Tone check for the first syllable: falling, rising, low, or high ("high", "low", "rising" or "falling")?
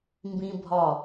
high